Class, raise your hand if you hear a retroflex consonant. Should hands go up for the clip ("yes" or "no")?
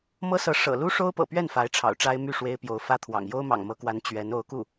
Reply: yes